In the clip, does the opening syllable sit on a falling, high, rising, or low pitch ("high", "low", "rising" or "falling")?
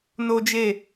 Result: high